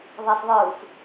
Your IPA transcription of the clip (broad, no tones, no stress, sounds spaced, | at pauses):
ðˤ ɛ s ðˤ ɯː f